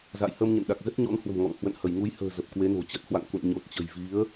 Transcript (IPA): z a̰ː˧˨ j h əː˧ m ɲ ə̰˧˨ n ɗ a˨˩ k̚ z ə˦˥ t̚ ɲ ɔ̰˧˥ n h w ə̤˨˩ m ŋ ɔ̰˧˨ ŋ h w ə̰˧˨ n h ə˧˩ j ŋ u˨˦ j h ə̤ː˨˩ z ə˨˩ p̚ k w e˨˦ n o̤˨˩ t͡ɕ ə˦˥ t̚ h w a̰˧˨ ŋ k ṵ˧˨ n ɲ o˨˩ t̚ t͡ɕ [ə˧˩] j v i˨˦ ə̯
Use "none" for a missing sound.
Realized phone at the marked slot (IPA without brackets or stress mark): ə̤˨˩